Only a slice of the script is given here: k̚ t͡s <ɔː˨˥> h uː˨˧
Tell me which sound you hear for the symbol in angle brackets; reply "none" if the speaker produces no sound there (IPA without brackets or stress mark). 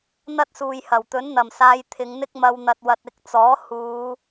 ɔː˨˥